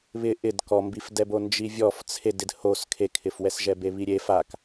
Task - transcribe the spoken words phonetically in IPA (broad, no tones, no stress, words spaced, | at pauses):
βɪ ʔɪd kɔmbifdɛbo nd͡ʒivʲɔf t͡sʰedɪd hos kʰekʰɪfwɛsʒɛ beβiɾʲe fak